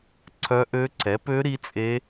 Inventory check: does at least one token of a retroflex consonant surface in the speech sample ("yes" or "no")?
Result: no